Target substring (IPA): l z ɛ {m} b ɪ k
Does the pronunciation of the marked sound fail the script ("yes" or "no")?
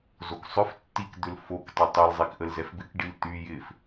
yes